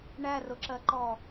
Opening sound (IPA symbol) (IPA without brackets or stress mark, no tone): ɳ